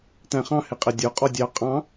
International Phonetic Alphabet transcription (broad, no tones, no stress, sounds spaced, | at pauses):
t æ̃ χ ɑ̃ h ɪ qʼ ɛ dʲ ɔ qʼ ɔ dʲ ɑ qʼ ɑ̃